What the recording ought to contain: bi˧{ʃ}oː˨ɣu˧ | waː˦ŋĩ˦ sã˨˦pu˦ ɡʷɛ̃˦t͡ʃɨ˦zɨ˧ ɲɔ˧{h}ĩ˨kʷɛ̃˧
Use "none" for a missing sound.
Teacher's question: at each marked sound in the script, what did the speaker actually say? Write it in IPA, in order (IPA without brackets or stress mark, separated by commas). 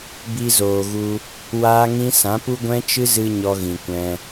z, ɣ